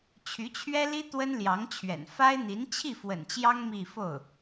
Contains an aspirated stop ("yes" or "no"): yes